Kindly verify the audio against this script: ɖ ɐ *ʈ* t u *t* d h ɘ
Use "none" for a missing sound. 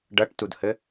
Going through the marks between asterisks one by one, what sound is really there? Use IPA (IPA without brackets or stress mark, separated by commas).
ʈ, none